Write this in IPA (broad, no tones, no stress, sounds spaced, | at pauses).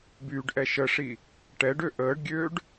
b yː ɖ ʔ ɛ ʃ ə ʂ i | ʈ ɛ ɖ ø ʔ əː ɖ ɡʲ øː ɖ